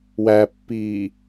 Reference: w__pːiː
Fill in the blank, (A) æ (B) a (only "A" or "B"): A